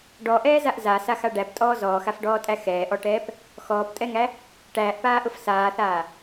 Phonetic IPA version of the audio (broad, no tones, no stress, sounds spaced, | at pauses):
ɖ ɔ ʔ ɛː z a ʔ z a s a x a ɖ æ p tʼ ɔː z ɔː x a f ɖ ɔː tʼ æ x ɛː ʔ ɔ ʈ ɛː p | x ɔː p tʼ ɛ ŋ æ | ʈ æː ʔ p aː ʔ ʊ f s aː θ aː